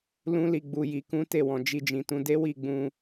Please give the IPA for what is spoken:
lũ˦li˧ ɡ͡bu˧ji˧kũ˦ te˦˨wɔ̃˨ d͡ʒi˧d͡ʒĩ˨tũ˨˦ de˦wi˦˨ɡ͡bũ˧

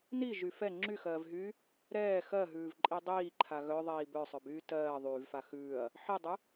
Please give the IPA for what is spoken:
niʒy fɛ ŋ͡ǁyxɜːvɦyː | ɾɛː xɜɦʉːvǃʼi dˤiːǃʰa ɣœðˤiː bœsˤœbyː tɜː ðˤyːvfa xʉːɐ̯ | ħidˤʉ

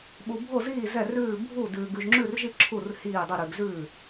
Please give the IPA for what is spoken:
ɓu˧bʱo˥˨ziː˥˨ zɛ˥˨rʉː˥˨ bʱu˥˨ dʉː˧ ɡʉ˧ʒŋ͡ǁʉ˥˨rʒi˥˨ ǁʰu˥˨r hiː˥˨dˤʉ˥˨ ɾʉ˧ɡzʉː˥˨

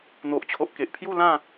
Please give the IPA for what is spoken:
n̪o˨ʔt͡ɕʰo˨ʔke˨ʔ pʰju˥˧lã˥˧

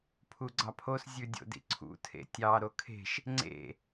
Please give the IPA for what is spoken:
pʰuɡ͡ǀɑpʰos zʲʉdʲo̰dḭǀʰṵ tʰḛtʲɑ ɾokʰe̤ʃ | ŋ͡ǀḛ

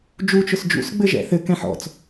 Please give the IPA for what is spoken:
d͡ʒu t͡ʃʊsd͡ʒṵs ɡ͡bɘʒɛ̰θɘ kɛ̃ħɔ̰t͡s

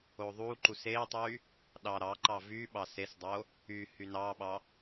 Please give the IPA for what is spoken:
oðˤuǃus etˤy | ɗɑɾɑǃɑ vy ɓɑsesdˤo | y hynɑɓɑ

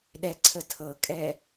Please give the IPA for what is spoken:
ɗɛǀʰətʰɤkʼɛ

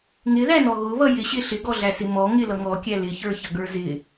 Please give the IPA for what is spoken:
ŋɪðænɔ ɣʊβʌ jɪɕɪ ɬɪɡɔɮæsɪ mɔ ŋɪlʌ ŋɔkʲæ lɪçə˞çʌɡə˞ zɪ

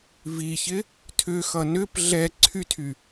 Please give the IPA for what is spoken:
viçɪ | tʰʏxʌ nʏp ɮɛ ǀʰytʰy

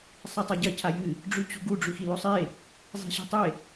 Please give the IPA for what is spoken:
sˤatˤaɟɐ cʰajɨ | ɖ͡ʐʉt͡ɕṳɡu ɖ͡ʐʉxilosˤe | zˤi̤ɕi̤tˤe

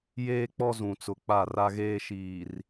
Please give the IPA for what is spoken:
jeː˦k͡pɔ˦zũ˨t͡sʊ˨ k͡pa˦˨ra˦ɣeː˦ʃiː˨r

